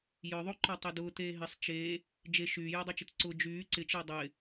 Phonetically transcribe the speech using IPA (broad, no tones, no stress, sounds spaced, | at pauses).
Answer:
j œ ðˤ o ǃ ɔ tˤ e d ʊː t eː ɦ ɪ sˤ t͡ʃ eː | d͡ʒ e ʃ yː j e dˤ ɪ t͡ʃ ɪ t ǀ ʊ d͡ʒ yː ǀ ɪ t͡ʃ ɪː dˤ ɪː